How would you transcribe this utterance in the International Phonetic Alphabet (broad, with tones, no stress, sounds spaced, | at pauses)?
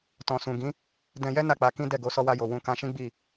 t ɔ̃˨ s ũ˨ ɡ ĩ˨˦ | d ɛ̃˧ j ɛ˦ n a˦˨ k͡p a˨˦ k ĩ˦ d ɛ˦˨ ɡ o˨˦ s ɔ˧ w a˧ j o˨ w ũ˧ k ã˧ ʃ ĩ˦ ɡ͡b i˦˨